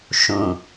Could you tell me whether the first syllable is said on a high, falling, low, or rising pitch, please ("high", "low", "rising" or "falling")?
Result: low